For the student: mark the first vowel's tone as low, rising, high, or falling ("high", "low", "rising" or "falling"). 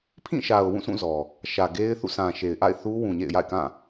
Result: falling